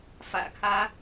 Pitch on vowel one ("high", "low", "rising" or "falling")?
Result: low